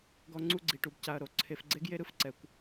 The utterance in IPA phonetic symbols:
ɡ ɔ˧ ŋ͡ǀ u˧ ɡ͡ǀ i˨ ʈ u˨ b c a˨ ɐ̯ ɾ o˨ ǀʰ e˧ f ɡ͡ǀ e˦ ɡ j e˦ ɾ ɯ˨ f ǀ ɛ˦ kʷ

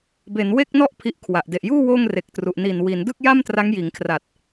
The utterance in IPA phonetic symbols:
b e˩˦ n w e˥˩ k̚ n ɔ˥˩ ʔ pʰ i˦˥ ʔ kʰ w a˨˩ ʔ d e˨˩ ʔ j uː˥˩ w oː˥˩ ŋ r e˨˩ k̚ t r u˨˩ ʔ n i˨˩ n w i˩˦ n d ɯ˥˩ k̚ j a˥˩ m t r a˦˥ ŋ j iː˩˦ ŋ kʰ r a˨˩ t̚

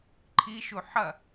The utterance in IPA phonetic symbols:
ǃʰ i ʃ u ħ ɐ

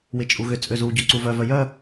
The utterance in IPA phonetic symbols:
w ɪ t͡ʃʼ u ɣ ʏ t͡sʼ ø z u ɟ ø ǀ u v œ v œ j œ

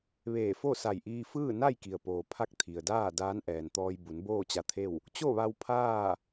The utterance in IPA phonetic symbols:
ʋ eː˧˩ f o˥˨ s a˧˩ j ʔ iː˧ f ɯː˥˨ n a˥˨ j k i˩ ə̯ p oː˩ pʰ a˥˨ k̚ t̪ʰ i˩ ə̯ d aː˥˨ d aː˧˥ n ʔ ɛː˩ n t̪ ɔː˧ j b u˩˧ n b oː˥˨ t͡ɕ a˧ t̪ʰ e˥˨ w | t͡ɕ o˥˨ ʋ a˧ w pʰ aː˥˨

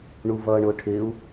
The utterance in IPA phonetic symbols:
ɳ u v ʌː ɳ ʊː ʈʰ ɪː u̯

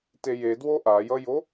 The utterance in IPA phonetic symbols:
t e j e d w o ʔ a j ʌ j o

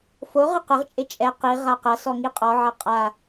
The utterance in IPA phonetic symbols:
f o ʁ ɨ q ɘ ʁ t͡ʃʼ e t͡ʃʼ ɛ q i ʁ a q ɐ s ɔ ŋ i qʼ ɔ ʕ ɐ qʼ a

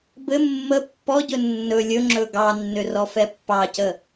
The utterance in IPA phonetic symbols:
b ɘ mː ə pː ɔ ɟ ɵ nː ɵ lʲ ɵ ŋ͡ǁ ɵ ɡ ɑ nː ʏ r ɔ f ɛ pː ɑ c ə

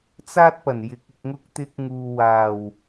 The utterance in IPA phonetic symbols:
t͡s aː˥ t̚ p ɐ˨˩ n j ɪ˨˥ k̚ ɪ˨ k̚ ŋ ʊ˧ k̚ t̪ ɪ˧ k̚ ŋ uː˨ w aː˨˩ w

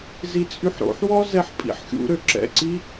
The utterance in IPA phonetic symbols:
z i t͡sʼ y ħ ɾ o̰ ħ w ɔ z ɛ ħ pʼ ḭ ħ xʲ ṵ ɾ ø ǁ ɛ̰ ǀ i

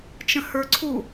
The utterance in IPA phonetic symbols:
t͡ʃ ə̃ h ə˞ ǀʰ u

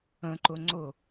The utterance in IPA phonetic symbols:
ə̃ ǃ ʊ ŋ͡ǀ ʊ

